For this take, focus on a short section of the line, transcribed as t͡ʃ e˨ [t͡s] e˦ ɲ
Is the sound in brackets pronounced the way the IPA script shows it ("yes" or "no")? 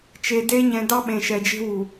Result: no